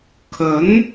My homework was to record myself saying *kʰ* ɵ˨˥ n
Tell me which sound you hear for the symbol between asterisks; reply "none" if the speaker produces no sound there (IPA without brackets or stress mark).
kʰ